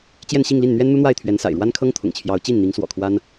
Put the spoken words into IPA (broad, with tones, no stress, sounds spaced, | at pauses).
t͡ɕ j ɛ˥˧ n ɕ i˥˧ ŋ l i˥˩ n n̪ ɥ ɛ˥ n n̪ u˥ n̪ w a˥˩ ɪ̯ t̪ʰ ɥ ɛ˧˥ n s a̰˨˩ ɪ̯ ɻ w a˥ n kʰ ɤ˥ ŋ t̪ʰ ʊ̰˨˩ ŋ t͡ɕʰ j ɑ˧˥ ʊ̯ t͡ɕ i˥˩ n n̪ i˧˥ ŋ s w ɔ̰˨˩ kʰ w a˥ n